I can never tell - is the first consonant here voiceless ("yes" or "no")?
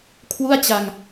yes